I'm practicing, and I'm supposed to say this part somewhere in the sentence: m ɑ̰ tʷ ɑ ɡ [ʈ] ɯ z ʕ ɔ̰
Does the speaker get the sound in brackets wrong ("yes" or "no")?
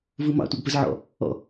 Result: yes